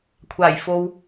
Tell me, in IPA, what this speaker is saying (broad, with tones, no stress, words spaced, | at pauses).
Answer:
kʷʰaː˨˩jfo˨w